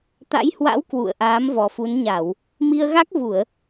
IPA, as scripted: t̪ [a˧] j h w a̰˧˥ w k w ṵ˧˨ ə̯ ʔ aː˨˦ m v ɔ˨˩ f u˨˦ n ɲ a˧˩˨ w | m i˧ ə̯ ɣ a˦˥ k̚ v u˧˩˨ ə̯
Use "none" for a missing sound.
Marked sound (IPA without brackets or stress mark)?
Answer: a̰˧˥